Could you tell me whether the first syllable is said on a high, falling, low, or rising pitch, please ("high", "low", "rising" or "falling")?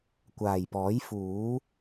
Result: low